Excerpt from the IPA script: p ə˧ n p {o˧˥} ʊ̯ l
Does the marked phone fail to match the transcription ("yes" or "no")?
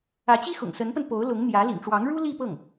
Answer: no